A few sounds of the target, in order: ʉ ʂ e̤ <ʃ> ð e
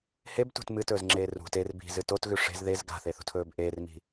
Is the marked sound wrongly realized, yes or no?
yes